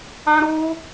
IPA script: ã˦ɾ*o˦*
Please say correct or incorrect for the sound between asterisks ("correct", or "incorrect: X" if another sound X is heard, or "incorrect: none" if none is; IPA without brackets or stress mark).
correct